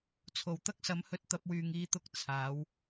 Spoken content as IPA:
t͡sʰ o˨˩ w t̪ ɐ˥ k̚ s ɐ˨˥ m h ɵ˧ t̚ t̪ ɐ˧ p̚ w yː˨ ŋ iː˧ t̪ ʊ˧ k̚ t͡sʰ aː˨˥ w

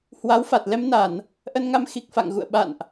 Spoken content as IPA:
h w a˨˦ w f a˨˩ t̚ l ɛ˧ m n a˧˩˨ n | ʔ ə˧ n ŋ a˧ m x i˨˩ k̚ f a̰˧˨ ŋ ɣ ṵ˧˨ ə̯ ɓ a̰˧˨ n ʔ

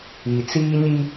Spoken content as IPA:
i˨ t͡s iː˦ ɲ i˦

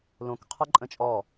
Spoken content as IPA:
l õ k qʰ ʌ ǃʼ ə̃ t͡ʃʼ ɔ

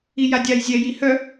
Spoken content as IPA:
i j a dʲ a j zʲ ɛ j i h œ

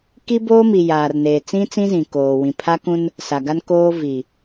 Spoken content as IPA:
k i˦ b oː˦ m i˨ j aː˨ r n eː˨ t͡s ĩ˦ t͡s ĩ˦ z ĩ˨ k oː˨ w ĩ˨ pʰ a˦ k ũ˦ n | s a˨ ɡ a˦ n k oː˦ v i˨

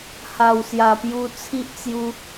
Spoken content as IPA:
h a˨˩ w s j a˨˩ p j u˧ t͡sʰ i˦ ʔ t͡s j u˦

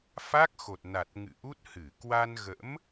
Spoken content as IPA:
f a˦˥ k̚ x o˨˩ t̚ n a˨˩ t̚ ŋ ɨ̰˧˨ ʔ u˦˥ t̚ h ɨ˧˩ k w a˧ n ɣ ə̰˧˥ m

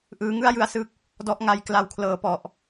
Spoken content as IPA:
ʔ ɯː˧ ŋ ɯ˥˩ a̯ j ɯ˧ a̯ s ɯ˦˥ k̚ | d ɔ˥˩ ʔ ŋ a˦˥ j k l a˧ w kʰ l ɤː˩˦ p ɔ˨˩ ʔ

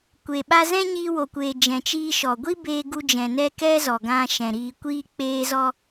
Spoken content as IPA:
kʷ e˨ ɓ a˦ z ɛ̃˦ ɲ iː˧ w o˨ kʷ eː˨ d͡ʒ ɛ̃˨ t͡ʃ iː˧ ʃ ɔ˨ ɡʷ i˦ b eː˧ ɡ u˧ d͡ʒ ɛ̃˨ n ɛ˧ k ɛ˦ z ɔ˨ ɡ ã˧ ʃ ɛ̃˨ ɾ iː˨ kʷ iː˧ k͡p eː˧ z ɔ˧

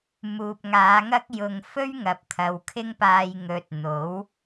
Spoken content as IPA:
m uː˨ p̚ ŋ aː˨˧ ŋ ɐ˥ k̚ j ʊ˧ ŋ f ɵ˥ ɥ ŋ ɐ˨ p̚ t̪ʰ ɐ˨ w kʰ ɪ˥ ŋ p aː˧ j ŋ ɵ˧ t̚ n̪ o˨˥ w

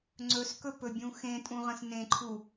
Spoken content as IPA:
ŋ͡ǀ ɵ s k ɵ p ɵ bʲ ũ x ẽ tʼ ũ ʁ ə̃ s n ẽ ǃʰ u

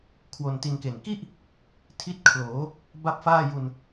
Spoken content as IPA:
kʰ w o˧ n t i˧ n k e˨˩ n k i˥˩ ʔ | tʰ i˦˥ t̚ kʰ l oː˩˦ | b a˥˩ p̚ f aː˥˩ j u˧ n

